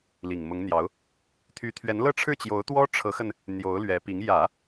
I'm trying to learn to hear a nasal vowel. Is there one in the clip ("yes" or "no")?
no